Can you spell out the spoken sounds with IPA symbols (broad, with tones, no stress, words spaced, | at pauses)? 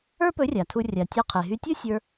ə˞˥ pɵ˧˥rʲa˩tʰu˧ rʲa˩tʲə˞˧ qʰe˩ɦy˧tʲu˥ sʲə˞˧